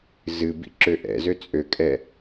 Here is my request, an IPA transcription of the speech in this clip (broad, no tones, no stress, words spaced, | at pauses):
zɨbḭ ǁøʔɛ̰zø t͡sʼøkʼɛ